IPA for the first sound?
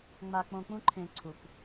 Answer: ŋ͡m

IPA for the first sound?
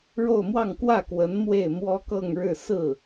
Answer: ɻ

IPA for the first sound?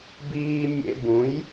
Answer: b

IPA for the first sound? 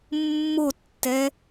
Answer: mː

